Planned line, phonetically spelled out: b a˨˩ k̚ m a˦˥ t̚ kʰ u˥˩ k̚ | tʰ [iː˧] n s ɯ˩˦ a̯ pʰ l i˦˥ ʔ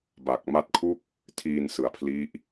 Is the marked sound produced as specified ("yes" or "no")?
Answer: yes